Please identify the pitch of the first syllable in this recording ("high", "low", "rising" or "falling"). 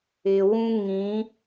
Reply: low